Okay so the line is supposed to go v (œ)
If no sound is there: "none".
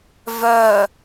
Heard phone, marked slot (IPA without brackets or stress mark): œ